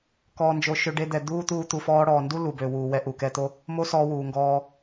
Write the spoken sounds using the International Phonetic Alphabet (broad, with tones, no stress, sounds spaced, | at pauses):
k ɔː˧ n d͡ʒ o˧ ʃ ø˧ ɖ e˧ d̪ ɛ˨ d̪ uː˦ t̪ uː˦ t̪ u˧ f ɔː˧ ɽ ɔː˨ n d u˦ l u˨ b ø˨ w uː˨ w ɛ˧ ʔ u˨ k ɛ˧ t̪ o˦ | m o˦ s ɔː˧ w uː˨ ŋ ɡ ɔː˧